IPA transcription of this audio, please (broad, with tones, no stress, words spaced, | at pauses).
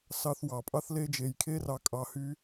sɑ˧θwɑ˨ pʼɑ˦θle˦d͡ʒe˧j kʰe˦rɑ˧kʼɑ˧ hy˦